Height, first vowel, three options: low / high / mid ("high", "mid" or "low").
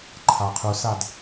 low